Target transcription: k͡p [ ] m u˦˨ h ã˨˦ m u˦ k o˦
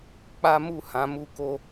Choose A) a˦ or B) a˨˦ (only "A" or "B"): A